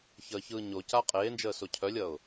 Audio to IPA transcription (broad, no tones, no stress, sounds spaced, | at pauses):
ç əː ç ɯː ɲ o c a qʼ eː n d͡ʒ əː s o cʰ œ lʲ ʌ ʊ̯